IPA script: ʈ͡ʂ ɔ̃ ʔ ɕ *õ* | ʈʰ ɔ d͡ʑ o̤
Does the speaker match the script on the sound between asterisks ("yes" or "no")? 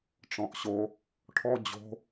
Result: no